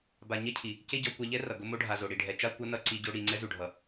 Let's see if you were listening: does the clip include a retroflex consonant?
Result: yes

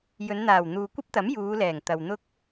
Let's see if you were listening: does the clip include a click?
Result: no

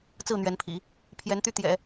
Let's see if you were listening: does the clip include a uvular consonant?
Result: no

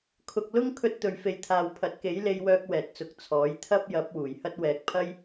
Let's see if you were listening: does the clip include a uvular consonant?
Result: no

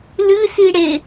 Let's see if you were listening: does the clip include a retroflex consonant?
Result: yes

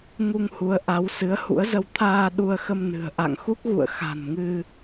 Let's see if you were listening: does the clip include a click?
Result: no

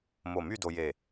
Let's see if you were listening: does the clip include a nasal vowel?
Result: no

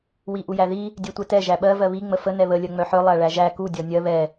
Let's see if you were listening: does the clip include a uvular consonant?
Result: no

